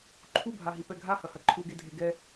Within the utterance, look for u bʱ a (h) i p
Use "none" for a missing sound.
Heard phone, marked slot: ɦ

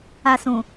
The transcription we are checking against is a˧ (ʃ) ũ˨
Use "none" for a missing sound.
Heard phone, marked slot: s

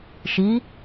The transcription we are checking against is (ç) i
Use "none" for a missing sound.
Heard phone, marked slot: ʃ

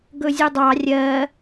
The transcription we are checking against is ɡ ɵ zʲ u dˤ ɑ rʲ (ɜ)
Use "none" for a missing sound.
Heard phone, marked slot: ɜ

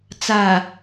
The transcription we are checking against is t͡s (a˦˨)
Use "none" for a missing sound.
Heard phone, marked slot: a˨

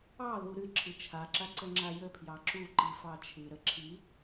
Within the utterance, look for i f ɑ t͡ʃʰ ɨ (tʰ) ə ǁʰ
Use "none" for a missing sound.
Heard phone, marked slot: ɾ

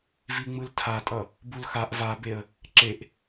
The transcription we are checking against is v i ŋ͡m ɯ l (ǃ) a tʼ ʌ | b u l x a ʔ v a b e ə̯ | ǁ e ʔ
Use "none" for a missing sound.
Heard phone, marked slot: tʰ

